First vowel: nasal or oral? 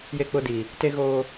oral